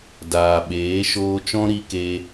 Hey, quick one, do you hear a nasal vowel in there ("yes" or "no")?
yes